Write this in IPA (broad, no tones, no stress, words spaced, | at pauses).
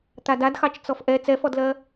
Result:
t̪adadxɑt͡ʃ t͡sɔfʔɛ t͡sɛfɔdlɜ